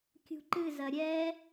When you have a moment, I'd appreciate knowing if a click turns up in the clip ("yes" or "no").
yes